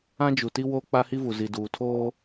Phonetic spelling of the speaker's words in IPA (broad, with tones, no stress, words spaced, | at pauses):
ã˦d͡ʒu˨ti˦ woː˦k͡pa˦hi˦vu˨ zi˨duː˨tʰoː˦